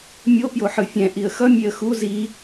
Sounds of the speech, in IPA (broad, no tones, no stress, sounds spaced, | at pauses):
mʲ o p j o ħ ɯ fʲ ɛ̃ ʔ i ə̯ x ʌ mʲ e ə̯ x u z i